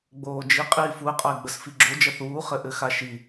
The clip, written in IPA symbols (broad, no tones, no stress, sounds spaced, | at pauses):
ɡ͡b oː d͡ʒ i qʼ iː f u ə̯ qʼ ʌ ɪ̯ ɡ͡b ə s f i ɡ͡ǁ o d͡ʒ ʌ θ uː χ ɘ ʔ ɘ x a ʃ i